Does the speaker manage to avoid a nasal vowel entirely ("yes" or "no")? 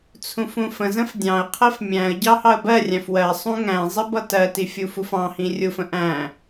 no